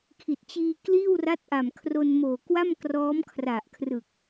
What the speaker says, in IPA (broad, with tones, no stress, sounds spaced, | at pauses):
kʰ i˨˩ t̚ t͡ɕ iː˧ k l iː˥˩ w r a˦˥ t̚ ʔ a˨˩ m kʰ r o˧ n m oː˨˩ k w a˥˩ m k r ɔː˦˥ m kʰ r a˨˩ ʔ kʰ r ɯ˨˩ k̚